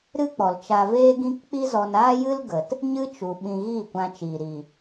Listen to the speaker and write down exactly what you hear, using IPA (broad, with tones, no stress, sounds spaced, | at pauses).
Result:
ɾ ɨ˦ k͡p ɔ˨ l t͡ʃ a˧ v eː˦ ɡ ĩ˦ k k͡p i˦ z ɔ˧ n aː˦ j ɨ˦ l ɡ ə˨ t | ɲ ɨ˦ t͡ʃ u˨ ɓ ĩ˧ ɣ iː˦˨ kʷ ã˧ t͡ʃ iː˨ ɾ i˨